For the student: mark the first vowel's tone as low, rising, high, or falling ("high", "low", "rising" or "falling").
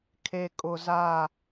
low